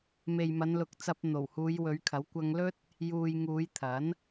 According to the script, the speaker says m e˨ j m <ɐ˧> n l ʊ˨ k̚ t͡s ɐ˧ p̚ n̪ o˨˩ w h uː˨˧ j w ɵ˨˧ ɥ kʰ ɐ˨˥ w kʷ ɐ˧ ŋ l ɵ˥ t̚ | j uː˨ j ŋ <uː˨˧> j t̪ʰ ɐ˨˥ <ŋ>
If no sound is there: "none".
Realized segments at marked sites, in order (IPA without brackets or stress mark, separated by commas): ɐ˨˧, uː˨˧, n